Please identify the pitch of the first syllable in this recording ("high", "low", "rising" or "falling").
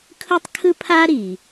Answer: high